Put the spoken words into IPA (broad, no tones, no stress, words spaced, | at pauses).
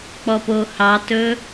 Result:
k͡pɔpohɑtɵ